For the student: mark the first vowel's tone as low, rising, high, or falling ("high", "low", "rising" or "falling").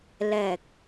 low